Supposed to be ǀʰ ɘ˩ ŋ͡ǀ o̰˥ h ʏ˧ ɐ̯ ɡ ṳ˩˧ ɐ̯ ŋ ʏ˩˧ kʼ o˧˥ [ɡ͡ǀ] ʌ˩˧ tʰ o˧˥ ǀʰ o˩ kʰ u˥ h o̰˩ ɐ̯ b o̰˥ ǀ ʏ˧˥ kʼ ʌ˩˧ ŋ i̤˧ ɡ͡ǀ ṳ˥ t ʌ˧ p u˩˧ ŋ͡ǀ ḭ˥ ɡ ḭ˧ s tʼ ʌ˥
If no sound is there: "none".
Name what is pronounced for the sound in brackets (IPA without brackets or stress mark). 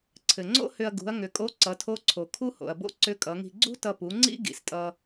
ǀ